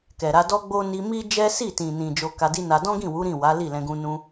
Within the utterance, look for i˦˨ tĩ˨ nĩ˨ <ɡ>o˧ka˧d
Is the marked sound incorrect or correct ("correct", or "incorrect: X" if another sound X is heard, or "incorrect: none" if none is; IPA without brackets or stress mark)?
incorrect: d͡ʒ